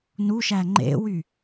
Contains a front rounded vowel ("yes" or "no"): yes